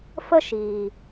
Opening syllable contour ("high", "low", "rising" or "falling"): high